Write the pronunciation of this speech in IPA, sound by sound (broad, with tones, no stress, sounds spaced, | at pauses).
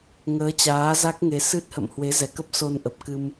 ŋ əː˨˦ t͡ɕ aː˨˦ z a˦˥ k̚ ŋ e˨˦ s ɨ˦˥ t̚ h ə̰˧˨ m h w e˨˦ z ɛ˧˩ k ə˦˥ p̚ s o˧ n ʔ ə˨˩ p̚ k ɨ˧ m